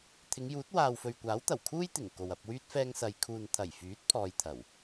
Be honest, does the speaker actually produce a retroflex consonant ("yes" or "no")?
no